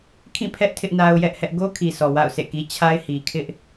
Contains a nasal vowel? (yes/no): yes